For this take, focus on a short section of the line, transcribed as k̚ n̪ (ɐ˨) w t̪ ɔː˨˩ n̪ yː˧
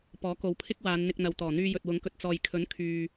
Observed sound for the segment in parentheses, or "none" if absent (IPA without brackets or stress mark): ɐ˨